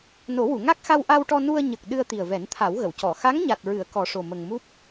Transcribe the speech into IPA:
n o˨˩˦ w u˨˩˨ ŋ a˦˥ k̚ x a˧ w ʔ a˧ w ʈ ɔ˧ n u˧ ə̯ ɲ ə˨˩ k̚ ɗ ɨ˧ ə̯ t̪ i˨˩ ə̯ v ɛ˨˩˦ n t̪ʰ a˨˩˦ w ɣ ə˨˩˨ w c ɔ˨˩˨ x a˧˥ ŋ ɲ a˨˩ t̚ ɹ ɨ˨˩˨ ə̯ k ɔ˨˩˦ ʂ o˨˩ m ə˨˩ ŋ m u˦˥ p̚

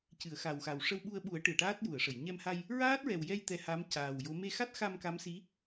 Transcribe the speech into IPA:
c ɨ˨˩˨ ə̯ x a˨˩ w x a˨˩ w ʂ ə˧ w ɓ u˧ ə̯ ɓ u˨˩˦ ə̯ ʈ ɨ˨˩˨ ə̯ ʈ aː˦˥ t̚ j u˨˩˨ ə̯ ʂ ə˨˩˨ j ɲ ɛ˧ m h a˧ j | ɹ aː˦˥ t̚ ɹ ɛ˨˩ w j ɛ˧ j t̪ ɛ˧ h a˧˥ m c aː˨˩ w j o˧˥ m e˧ x a˦˥ t̚ x a˧ m k a˧˥ m s i˧˥

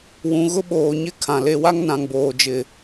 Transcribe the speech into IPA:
w ũ˨ ɣ ʊ˦ ɓ oː˨ ɲ ɪ˦ kʰ ã˨ l e˦ w a˦ ŋ n ã˨ ŋ b oː˨ d͡ʒ ɪ˨

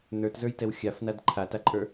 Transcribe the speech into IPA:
n ə˞ t z ə˞ j t ɛ w xʲ a f n a d ǃʰ a t a ǃʼ ə˞

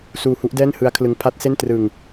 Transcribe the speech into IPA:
s uː˧ h u˦˥ ʔ d ɛː˥˩ n h ɯ˦˥ a̯ kʰ l ɯ˦˥ ŋ pʰ a˦˥ t̚ s e˥˩ n t r ɯ˧ ŋ

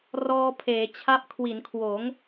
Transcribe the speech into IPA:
r ɔː˧ pʰ eː˩˦ t͡ɕʰ a˥˩ p̚ kʰ w i˩˦ n kʰ w oː˩˦ ŋ

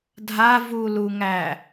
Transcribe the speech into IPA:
dʱ a v u l u ŋ æ

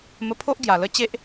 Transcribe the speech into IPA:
m ə˧ pʰ o˦ ʔ ɡ j a˨˩ l ə˥˧ t͡ɕ e˦ ʔ

